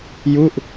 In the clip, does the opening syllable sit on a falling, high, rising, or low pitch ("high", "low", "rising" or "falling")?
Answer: falling